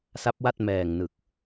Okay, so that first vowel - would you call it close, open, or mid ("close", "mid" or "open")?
open